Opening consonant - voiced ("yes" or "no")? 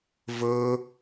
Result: yes